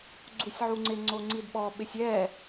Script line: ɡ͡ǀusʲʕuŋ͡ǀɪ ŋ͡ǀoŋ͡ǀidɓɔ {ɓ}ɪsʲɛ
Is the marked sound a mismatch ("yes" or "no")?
no